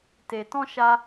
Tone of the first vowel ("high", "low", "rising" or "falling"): low